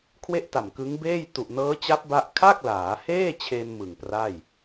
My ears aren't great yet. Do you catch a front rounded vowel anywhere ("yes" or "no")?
no